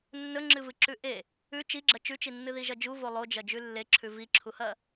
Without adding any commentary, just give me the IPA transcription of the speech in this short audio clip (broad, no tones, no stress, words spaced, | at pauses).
nːɵŋ͡ǁɨvɨ ǁʉʔe | ʉ t͡ʃiɡ͡ǁɐ t͡ʃʉt͡ʃinːɨ ðiʒɐd͡ʒuvo lˠod͡ʒɐ d͡ʒʉlːeǁʰʉ viǁʰuhɐ